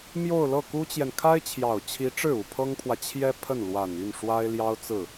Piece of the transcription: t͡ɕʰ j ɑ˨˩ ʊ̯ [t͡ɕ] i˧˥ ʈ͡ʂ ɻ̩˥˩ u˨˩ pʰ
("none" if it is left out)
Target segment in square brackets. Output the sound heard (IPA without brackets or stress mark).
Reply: t͡ɕʰ